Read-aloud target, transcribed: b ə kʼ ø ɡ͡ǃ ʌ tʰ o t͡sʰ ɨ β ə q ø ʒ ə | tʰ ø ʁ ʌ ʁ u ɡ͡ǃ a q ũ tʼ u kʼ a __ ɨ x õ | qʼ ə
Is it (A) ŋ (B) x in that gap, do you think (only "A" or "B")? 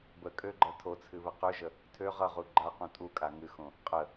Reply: A